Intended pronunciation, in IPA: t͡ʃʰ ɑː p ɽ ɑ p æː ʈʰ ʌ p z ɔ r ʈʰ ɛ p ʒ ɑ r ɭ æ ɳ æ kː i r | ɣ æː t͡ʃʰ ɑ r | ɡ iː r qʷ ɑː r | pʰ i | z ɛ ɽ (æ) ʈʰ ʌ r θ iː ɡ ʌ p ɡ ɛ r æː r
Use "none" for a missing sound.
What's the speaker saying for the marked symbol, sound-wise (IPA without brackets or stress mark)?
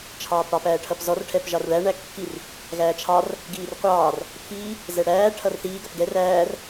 æː